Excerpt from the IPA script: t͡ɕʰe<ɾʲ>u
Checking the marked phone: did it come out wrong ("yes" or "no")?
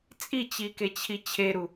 yes